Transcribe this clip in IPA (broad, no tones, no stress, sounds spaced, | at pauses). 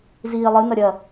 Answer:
z iː lˠ ɨ n ɐ ɾʲ ɐ